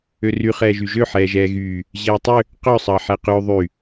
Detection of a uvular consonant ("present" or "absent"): present